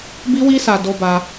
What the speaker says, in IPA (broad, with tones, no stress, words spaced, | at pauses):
bi˦wi˦sa˧ do˦ba˦